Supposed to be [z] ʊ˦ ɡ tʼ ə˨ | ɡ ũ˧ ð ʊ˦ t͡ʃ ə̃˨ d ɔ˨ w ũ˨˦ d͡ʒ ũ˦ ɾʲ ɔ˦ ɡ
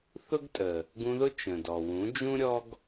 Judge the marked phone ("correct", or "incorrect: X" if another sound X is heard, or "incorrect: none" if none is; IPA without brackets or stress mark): incorrect: θ